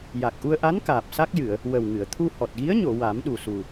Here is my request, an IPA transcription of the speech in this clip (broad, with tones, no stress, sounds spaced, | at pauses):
j a˨˩ k̚ ʔ u˧ ə̯ ʔ a˧˥ n k aː˨˩ p̚ s a˦˥ k̚ j ɨ˨˩˨ ə̯ | w ə˨˩ w ŋ ɨ˨˩˨ ə̯ t̪ʰ u˧ h ɔ˨˩ t̚ ɣ i˧˥ ə̯ ɲ o˨˩˨ w a˨˩˦ m ɗ u˨˩ s u˨˩